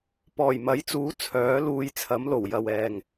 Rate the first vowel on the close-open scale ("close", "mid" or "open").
mid